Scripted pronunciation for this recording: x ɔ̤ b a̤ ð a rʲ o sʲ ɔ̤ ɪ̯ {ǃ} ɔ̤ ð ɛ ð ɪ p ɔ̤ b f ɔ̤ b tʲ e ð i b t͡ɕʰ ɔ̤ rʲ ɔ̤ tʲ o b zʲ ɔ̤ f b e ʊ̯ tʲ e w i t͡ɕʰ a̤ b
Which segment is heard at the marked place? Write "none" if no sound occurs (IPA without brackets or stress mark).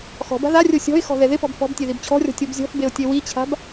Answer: x